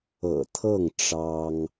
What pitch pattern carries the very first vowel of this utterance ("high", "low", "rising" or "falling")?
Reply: low